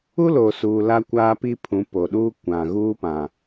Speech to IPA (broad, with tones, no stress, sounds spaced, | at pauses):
u˦ l oː˨ s uː˨ l a˦ kʷ aː˦ p i˦ pʰ ũ˨˦ p o˨ ɗ uː˦ kʷ ã˨ ɣ uː˦ p ã˨